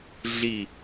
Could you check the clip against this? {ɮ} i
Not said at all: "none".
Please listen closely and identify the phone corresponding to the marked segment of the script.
ɮ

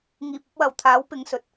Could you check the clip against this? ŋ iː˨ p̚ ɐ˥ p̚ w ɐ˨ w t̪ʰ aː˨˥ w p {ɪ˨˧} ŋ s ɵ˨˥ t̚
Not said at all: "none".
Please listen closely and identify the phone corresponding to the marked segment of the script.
ɪ˨˧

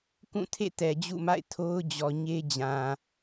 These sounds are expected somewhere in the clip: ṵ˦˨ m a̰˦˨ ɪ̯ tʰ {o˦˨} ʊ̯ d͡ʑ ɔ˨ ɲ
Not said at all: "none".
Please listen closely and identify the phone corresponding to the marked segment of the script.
o˦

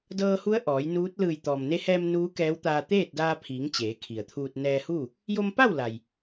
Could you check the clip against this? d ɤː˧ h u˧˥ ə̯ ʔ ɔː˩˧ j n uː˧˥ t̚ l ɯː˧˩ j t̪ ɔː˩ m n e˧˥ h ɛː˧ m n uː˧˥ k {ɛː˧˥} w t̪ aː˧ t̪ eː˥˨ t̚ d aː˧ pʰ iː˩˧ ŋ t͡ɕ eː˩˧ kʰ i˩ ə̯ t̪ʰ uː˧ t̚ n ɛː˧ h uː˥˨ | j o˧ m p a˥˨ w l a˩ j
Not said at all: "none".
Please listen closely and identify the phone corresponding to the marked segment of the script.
ɛː˧˥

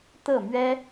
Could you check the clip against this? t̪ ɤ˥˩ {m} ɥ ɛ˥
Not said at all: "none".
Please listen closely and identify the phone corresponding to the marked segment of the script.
m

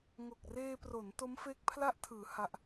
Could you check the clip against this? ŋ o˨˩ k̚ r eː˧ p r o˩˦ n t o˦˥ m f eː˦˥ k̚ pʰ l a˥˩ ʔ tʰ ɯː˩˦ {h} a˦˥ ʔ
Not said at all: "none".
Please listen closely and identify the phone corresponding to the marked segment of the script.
h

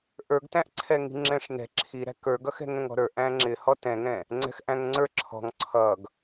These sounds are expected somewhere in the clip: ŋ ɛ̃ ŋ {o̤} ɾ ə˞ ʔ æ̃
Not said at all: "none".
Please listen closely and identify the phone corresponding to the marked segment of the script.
ɔ̤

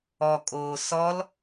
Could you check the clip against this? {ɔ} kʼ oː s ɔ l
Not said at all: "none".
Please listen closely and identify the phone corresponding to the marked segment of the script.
ɔ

